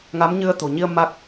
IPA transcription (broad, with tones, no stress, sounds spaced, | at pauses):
ŋ a˨˦ m ɲ ɨ˧ ə̯ t̪ o̤˨˩ ɲ i˧ ə̯ m a˦˥ k̚